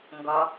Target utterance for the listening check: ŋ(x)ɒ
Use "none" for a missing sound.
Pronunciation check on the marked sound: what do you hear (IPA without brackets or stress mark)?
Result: ɡ